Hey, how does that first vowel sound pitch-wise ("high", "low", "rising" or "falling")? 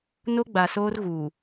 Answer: high